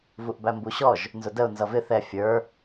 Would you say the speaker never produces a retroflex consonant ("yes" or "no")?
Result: yes